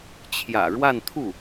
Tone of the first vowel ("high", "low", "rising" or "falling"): low